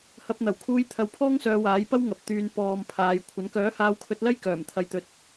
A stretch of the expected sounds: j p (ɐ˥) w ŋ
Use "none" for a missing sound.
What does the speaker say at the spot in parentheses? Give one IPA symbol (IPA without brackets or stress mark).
ɐ˥